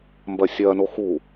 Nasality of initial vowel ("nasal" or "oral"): oral